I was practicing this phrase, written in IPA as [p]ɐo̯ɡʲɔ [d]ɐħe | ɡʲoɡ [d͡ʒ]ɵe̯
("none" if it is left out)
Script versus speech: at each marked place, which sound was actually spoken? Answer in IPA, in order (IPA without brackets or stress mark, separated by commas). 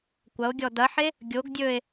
kʷ, d, dʲ